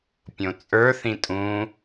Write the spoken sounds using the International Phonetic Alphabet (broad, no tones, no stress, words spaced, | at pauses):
pʲõt͡sʼə˞θĩ tʼũ